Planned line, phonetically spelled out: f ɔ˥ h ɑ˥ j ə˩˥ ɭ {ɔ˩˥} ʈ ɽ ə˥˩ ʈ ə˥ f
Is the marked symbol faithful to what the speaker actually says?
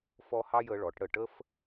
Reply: yes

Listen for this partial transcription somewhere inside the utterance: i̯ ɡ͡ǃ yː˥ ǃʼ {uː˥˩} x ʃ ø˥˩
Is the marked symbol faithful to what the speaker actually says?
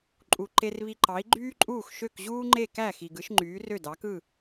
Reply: yes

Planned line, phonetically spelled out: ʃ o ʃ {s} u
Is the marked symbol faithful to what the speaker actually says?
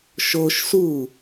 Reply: yes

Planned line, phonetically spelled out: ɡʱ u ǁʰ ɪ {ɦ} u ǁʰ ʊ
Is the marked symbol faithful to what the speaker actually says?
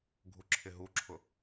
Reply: yes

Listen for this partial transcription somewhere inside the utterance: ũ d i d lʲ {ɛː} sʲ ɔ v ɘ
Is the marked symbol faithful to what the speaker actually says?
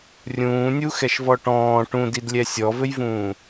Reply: no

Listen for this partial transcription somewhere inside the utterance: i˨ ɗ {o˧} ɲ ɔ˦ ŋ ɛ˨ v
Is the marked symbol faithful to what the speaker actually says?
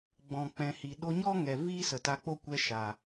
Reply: yes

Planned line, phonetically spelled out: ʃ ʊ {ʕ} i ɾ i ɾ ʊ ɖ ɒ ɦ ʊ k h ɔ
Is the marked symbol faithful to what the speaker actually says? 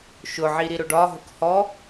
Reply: yes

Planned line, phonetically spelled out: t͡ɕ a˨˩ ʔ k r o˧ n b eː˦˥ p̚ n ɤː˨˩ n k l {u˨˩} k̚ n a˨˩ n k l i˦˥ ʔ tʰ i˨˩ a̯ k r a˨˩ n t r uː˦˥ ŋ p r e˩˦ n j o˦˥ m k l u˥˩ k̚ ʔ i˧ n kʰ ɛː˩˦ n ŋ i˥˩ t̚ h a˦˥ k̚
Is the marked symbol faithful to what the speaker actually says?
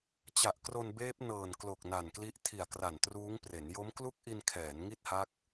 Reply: no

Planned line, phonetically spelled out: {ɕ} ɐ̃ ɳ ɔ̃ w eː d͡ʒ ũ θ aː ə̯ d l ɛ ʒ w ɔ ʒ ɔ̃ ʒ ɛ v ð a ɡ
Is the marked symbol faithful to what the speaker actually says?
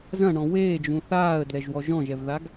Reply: no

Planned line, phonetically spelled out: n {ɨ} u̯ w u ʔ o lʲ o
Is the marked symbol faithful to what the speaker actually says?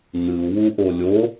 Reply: yes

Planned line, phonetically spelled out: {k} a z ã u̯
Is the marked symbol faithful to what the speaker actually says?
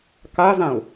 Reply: yes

